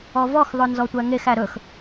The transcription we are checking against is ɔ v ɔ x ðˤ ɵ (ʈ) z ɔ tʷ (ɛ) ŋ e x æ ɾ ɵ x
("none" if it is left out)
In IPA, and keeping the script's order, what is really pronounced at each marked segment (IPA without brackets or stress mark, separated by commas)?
n, æ